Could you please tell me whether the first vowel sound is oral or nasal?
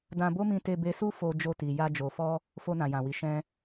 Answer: nasal